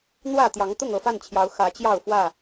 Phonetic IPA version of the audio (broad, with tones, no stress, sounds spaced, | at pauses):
n̪ w ä˥˨ t̪ j ɑ˨˦ ŋ t̪ ʊ˥˨ ŋ ɤ˥˨ f a˥˨ n t͡ɕʰ j ɑ˨˦ ʊ̯ x ä˨˦ t͡ɕ j ɑ˥˨ ʊ̯ f w ä˥˨